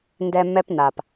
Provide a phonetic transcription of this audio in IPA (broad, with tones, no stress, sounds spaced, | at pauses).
n d ɛ˨ m ɛ˦ p n a˨ p